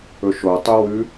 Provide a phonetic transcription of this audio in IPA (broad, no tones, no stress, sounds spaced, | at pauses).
ɵ ʃ o tˤ y w ʉ